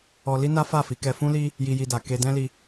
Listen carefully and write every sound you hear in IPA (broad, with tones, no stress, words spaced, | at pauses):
ɔ˧li˦ na˦fa˦˨fi˨˦kɛ˧ fũ˦li˦ | ji˧ji˧da˨ ke˧dɛ̃˦li˧